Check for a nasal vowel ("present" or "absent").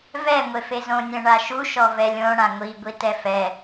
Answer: present